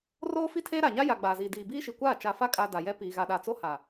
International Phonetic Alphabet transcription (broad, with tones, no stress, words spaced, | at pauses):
roː˦fi˦tʰeː˦ ɾa˨ɲa˦ja˨ ɡ͡baː˨ziː˨ diː˨biː˦ʃi˨kʷaː˦˨ t͡ʃa˨fa˦kʼa˨ da˨jɛ˦ piː˨ɣa˨ɗa˨ t͡so˦ha˨